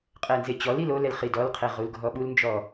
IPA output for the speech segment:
qʼɛnzet͡ɕɔlil olɛl χidɔlqʰe ʁulɡʱɔɓulnd͡ʒɔ

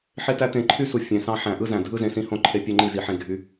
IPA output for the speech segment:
ħe˦tæ˦tẽ˧ ǃʰy˦su˨ fʲẽ˨ sɑ̃˧ħæ̃˨ ʔɯ˦zæ̃˨dʱɯ˦ zẽ˧ sĩ˧hõ˦˨ǃʰe˧ pʲø˦ŋ͡ǃi˦˨zi˨ħẽ˧ ɡʱy˧

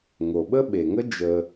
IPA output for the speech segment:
ŋo˩ɓə˥ɓe˩ŋə˥ d͡ʒə˩

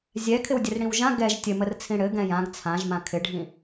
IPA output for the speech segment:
zʲɛkʰɪwdʲɘr ɽĩwʒã ɡɛʒ tʲɘmərt͡sʰĩ ɽɘ ɡɛ̃jãɡ t͡sʰãʒmã kʰɪɖʱĩ

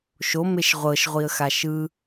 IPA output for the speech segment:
ʃomeʃ ʁʷɤʃʁʷiə̯xa ʃɯ

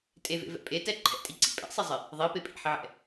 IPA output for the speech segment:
tʼevḛvɛ̰ pʼetɛ ǃʰɛ̰tʼiǀḭ pʼɛ̰sˤizˤɪ | ðˤipe pʼḭħɪʕɛ̰

